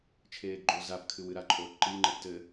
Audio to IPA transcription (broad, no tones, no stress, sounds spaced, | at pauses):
t͡ʃʰ eː ɡ ɡ͡ǃ o z a p kʰ ɨ w ɨ ɾ a ǃʼ oː p ǃ i ŋ͡ǃ ɘ ɡ t ɘ